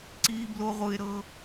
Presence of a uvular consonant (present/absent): present